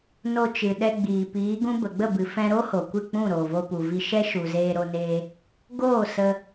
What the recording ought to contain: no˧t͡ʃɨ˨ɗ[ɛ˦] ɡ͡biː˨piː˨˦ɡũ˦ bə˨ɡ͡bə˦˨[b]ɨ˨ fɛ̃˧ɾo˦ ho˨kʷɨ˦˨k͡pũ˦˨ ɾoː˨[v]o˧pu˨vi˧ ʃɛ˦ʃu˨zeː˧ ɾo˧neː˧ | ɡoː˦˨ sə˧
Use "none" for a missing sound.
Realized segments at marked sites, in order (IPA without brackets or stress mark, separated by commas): ɛ˧, b, v